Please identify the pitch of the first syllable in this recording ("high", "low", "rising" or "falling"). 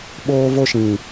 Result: high